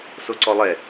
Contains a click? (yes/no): yes